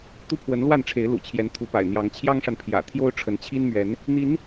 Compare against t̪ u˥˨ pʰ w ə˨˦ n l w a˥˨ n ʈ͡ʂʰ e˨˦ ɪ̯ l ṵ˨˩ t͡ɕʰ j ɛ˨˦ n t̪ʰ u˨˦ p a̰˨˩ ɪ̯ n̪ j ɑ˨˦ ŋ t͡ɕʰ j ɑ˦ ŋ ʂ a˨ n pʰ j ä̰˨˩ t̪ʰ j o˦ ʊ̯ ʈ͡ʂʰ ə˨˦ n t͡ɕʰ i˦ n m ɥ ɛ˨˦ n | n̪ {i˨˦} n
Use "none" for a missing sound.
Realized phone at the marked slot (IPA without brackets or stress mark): i˨˦